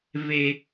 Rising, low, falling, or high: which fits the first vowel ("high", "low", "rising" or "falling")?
high